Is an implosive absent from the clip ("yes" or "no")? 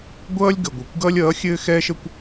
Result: yes